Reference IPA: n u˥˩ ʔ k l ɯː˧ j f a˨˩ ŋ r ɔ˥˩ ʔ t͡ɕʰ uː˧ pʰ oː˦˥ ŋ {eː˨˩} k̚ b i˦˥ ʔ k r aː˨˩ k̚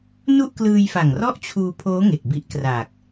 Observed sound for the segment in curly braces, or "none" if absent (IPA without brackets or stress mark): e˨˩